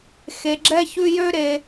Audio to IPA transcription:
x e˧ ɡ͡ǁ ɛ˦ ç ʉ˦ j ø˦ ɾ e˧

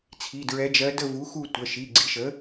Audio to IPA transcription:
t͡sʰ i˩˧˩ d ɹ ɛ˧˥ d͡ʒ ɜ˧˥ d ə˦˨ v u˩˥ x u˦˨ tʷ ə˩˧˩ ʃ i˩˧˩ ɡ͡ǀ i˩˥ ʃ ə˩˥

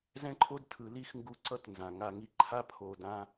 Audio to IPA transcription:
z ɛ̃˦ ǃʰ o˦ d tʰ ɯ˧ l i˦ x ŋ ɡ u˧ ǀ ʌ˧ t n z ã˨ ŋ a˧ ŋ i˧ ǃʰ a˦ pʰ o˧ d ã˦

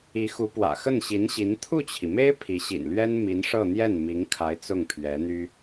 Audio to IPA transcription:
i˧˥ x u˧˥ p w ä̰˨˩ x ə˥˩ n ɕ i˧˥ n ɕ i˧˥ n t̪ʰ u˥˩ t͡ɕʰ i˩ m e˥ ɪ̯ pʰ i˧˥ ɕ ḭ˨˩ n l ɥ ɛ˥ n m i˧˥ n ʂ ɤ˥˧ n̪ j ɛ˥˩ n m i˧˥ ŋ kʰ a˧˥ ɪ̯ t͡s ʊ˥˩ ŋ pʰ ɥ ɛ˧˥ n̪ y˥

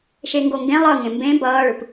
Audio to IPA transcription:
ʃ e ŋ ɡ o ŋ ɡ ẽ lˠ ʌ ŋ ẽ m b ẽ b ʌː ɭ ɯ p

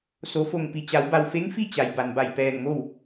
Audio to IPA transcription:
s o˩˧ f o˧˩ ŋ p i˩ t͡ɕ a˩˧ w b a˩ w f e˧˥ ŋ f i˥˨ t͡ɕ a˩ j b a˩ n b a˧˩ j p ɛː˧˩ ŋ m o˥˨ w

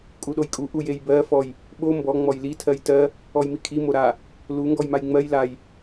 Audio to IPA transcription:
kʼ u ɗ o j kʼ u ʔ u j e j b ɜ f ɔ j | ɓ o m b ɔ ŋ͡m ɔ j l i tʰ ɜ j t ɜ | ɔ j m i kʰ i m o ɾ a | l u ŋ ɡ ɔ j m a j ŋ͡m ɜ j l a j

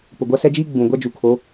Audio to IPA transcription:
p ʊ˨ ɡʷ a˦ s ɛ˦ d͡ʒ iː˦ ɡ͡b ũ˨ ɡʷ a˦ d͡ʒ u˨ kʰ o˨˦

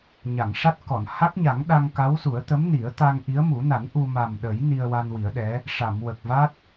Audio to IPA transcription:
ɲ a˨˩˨ ŋ ʂ a˦˥ t̚ k ɔ˨˩˨ n h a˦˥ k̚ ɲ a˨˩˦ ŋ ɗ a˧ ŋ k a˧˥ w s u˨˩˦ ə̯ t̪ ə˧˥ m n i˨˩˦ ə̯ t̪ a˧ ŋ ʔ i˧˥ ə̯ m u˨˩˦ n a˨˩˦ n ʔ u˧ m a˨˩ m ɗ ə˨˩˦ j n i˧ ə̯ w a˧ n w i˨˩˦ ə̯ ɗ ɛ˧˥ | ʂ a˨˩˨ m w ə˨˩ k̚ v a˦˥ t̚

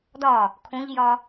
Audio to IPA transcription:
d ɒ | kʰ õ ʎ j ɒ

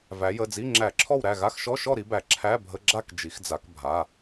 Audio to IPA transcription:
v æ˩˧ j ə˩˧˩ d͡z i˧˥˧ ŋ͡ǁ æ˧˩˧ ǁʰ ɔ˥˨ w ɾ æ˥˨ ɣ a˧˥˧ x ʃ ɔ˧˥˧ ʃ ɔ˥˨ ɾ i˧˥ b æ˩˧ ǁʰ æ˧˥˧ bʱ ə˧˥˧ ɡ͡ǁ a˥˨ k d͡ʒ i˩˧ x d͡z a˩˧ k bʱ a˩˧˩

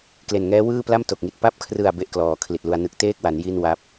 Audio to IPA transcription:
k l e˨˩ n ŋ ɛː˦˥ w ɯː˥˩ p l a˥˩ m t o˨˩ k̚ ŋ i˨˩ t̚ p a˦˥ p̚ kʰ r ɯ˨˩ a̯ b e˥˩ ʔ k l ɔː˩˦ kʰ l i˨˩ t̚ l u˧ a̯ n ɯ˨˩ k̚ t eː˥˩ k̚ w a˩˦ n j i˥˩ n w a˦˥ p̚

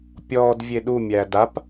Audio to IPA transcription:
pʲ ɔː d vʲ e ɗ u mʲ æː d a p

